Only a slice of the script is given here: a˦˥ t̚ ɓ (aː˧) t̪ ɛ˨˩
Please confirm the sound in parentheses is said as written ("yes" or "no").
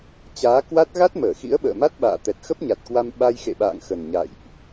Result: no